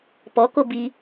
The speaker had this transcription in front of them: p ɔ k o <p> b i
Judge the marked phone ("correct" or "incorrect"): incorrect